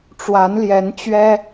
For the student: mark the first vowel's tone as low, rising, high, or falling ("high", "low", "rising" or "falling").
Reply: rising